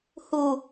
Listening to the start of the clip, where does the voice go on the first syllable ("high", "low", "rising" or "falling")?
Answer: low